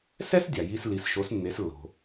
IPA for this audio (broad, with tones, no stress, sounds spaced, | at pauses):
s ɛ˥ s dʲ a˩ j i˧ s l i˩˥ s ʃ o˩˥ s nː e˩˥ s lː o̤˩